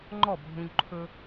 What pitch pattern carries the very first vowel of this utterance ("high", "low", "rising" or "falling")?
falling